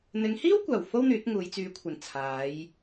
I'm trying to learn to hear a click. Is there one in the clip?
no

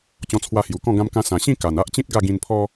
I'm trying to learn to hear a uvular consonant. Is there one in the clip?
no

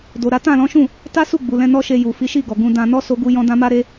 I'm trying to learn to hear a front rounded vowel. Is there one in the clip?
no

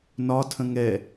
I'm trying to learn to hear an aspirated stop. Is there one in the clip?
yes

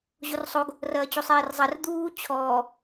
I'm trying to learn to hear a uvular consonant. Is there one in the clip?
no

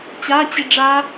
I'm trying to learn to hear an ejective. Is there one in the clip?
no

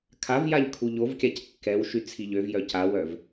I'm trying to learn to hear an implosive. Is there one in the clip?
no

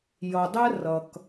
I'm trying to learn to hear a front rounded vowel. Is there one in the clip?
no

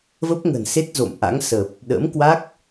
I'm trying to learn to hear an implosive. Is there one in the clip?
yes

